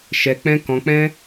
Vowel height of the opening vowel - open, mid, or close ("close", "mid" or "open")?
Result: mid